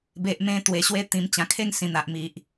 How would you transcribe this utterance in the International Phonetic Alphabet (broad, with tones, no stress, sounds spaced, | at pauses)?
b e˨ ʔ m ẽ˧ t̪ w e˨˩ ɕ w e˦ t̪ ĩ˨˩ m t͡ɕ ã˨˩ kʰ e˥˧ ŋ s ĩ˨˩ n̪ a˨ ʔ m i˨ ʔ